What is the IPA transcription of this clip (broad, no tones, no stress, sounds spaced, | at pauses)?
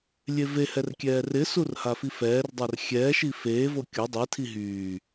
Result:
lʲ e v e h ɛ r kʲ ɛː r ɪ s u r h a f i f ɛː r dˤ a r xʲ ɛː ʃ i f eː v o kʲ o dˤ i tʰ i ɦ yː